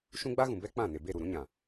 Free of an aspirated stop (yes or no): yes